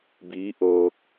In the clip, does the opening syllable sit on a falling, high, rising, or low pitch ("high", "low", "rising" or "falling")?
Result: rising